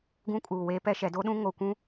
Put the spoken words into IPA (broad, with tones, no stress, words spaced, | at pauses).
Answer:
ɡũ˦kʼuː˨weː˦ pɛ˦ʃɛ˨˦ do˦ɗũ˦ ŋo˨kʷũ˦